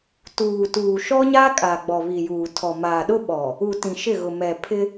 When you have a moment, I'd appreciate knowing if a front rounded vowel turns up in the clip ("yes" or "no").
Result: no